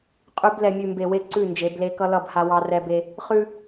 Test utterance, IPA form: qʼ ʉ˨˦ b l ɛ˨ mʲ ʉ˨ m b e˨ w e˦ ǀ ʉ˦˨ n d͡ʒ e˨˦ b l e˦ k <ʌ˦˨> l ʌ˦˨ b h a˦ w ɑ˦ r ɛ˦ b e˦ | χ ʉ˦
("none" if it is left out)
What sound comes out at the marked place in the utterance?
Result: ʌ˦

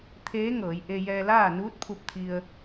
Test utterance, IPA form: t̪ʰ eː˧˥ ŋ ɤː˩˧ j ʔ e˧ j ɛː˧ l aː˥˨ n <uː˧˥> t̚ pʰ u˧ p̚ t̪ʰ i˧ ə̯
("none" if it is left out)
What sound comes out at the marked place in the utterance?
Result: uː˧˥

